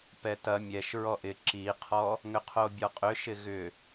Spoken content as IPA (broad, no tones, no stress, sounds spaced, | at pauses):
p ɛ t ɐ mʲ ɛ ʃ ɹ ɔ ʔ ɪ ǁ i qʰ ɔ | ŋ ʏ qʰ o bʲ ɔ qʼ ʏ ʃ ɪ ɣ ʏ